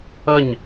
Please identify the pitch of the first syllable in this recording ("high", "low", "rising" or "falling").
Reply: falling